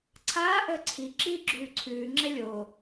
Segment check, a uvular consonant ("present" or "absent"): absent